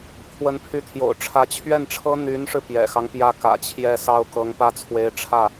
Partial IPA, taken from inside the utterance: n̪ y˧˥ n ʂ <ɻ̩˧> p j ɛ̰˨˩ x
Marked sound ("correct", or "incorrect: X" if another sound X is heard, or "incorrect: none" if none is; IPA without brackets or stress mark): correct